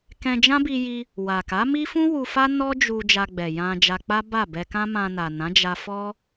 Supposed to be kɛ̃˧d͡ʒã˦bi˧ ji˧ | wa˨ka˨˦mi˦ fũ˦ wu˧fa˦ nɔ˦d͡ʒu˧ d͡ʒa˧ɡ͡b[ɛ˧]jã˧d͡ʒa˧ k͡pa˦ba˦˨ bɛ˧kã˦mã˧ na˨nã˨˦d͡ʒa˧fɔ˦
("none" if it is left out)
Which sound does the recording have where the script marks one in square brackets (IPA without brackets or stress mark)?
ɛ˨